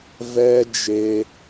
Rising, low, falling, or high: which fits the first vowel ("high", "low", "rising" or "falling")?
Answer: high